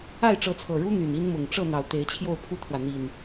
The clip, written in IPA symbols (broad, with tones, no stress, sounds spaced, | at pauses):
a˥˨ ɪ̯ ʈ͡ʂ ɤ˨˦ t͡sʰ ɤ˨˩ ɻ u˦ n̪ y˨˩ n i˦ n m ʊ˨˩ ŋ ʈ͡ʂ ɤ˥˨ n̪ ɑ˨˩ ʊ̯ t̪ e˨˦ ɪ̯ t͡ɕʰ j o˥˨ ʊ̯ pʰ u˦ t̪ʰ w ä˨ n̪ i˨˩ n